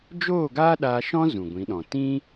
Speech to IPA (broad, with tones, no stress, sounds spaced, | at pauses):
d͡ʒ oː˦˨ ɡ aː˦ ɗ aː˧ ʃ ɔ̃˦ z ũ˨ ɡʷ ĩ˨˦ ɗ ɔ̃˨ t ĩ˦